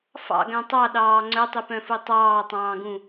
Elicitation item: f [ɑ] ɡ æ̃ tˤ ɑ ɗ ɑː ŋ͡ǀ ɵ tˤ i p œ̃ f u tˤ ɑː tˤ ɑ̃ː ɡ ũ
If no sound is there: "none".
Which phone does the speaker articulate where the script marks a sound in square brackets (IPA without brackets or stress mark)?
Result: ɑ̰